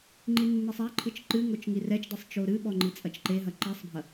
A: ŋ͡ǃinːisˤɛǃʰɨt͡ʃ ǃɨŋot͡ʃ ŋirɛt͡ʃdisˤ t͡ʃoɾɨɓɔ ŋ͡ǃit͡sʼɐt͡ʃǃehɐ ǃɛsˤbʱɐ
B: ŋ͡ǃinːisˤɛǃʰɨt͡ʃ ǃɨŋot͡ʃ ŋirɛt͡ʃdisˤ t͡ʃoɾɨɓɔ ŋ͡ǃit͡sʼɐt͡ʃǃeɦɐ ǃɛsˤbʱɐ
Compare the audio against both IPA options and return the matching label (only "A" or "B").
B